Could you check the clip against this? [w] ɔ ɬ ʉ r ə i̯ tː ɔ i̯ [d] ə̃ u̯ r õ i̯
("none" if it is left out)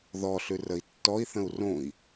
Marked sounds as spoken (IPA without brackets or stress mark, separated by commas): ð, θ